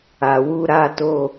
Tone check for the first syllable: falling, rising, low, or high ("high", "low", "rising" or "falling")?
low